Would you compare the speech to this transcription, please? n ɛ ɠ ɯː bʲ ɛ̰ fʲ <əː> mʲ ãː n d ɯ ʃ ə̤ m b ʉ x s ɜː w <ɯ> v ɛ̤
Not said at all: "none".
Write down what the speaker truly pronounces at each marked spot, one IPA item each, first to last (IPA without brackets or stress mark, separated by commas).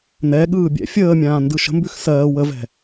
əː, ə